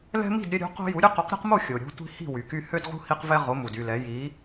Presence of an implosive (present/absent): absent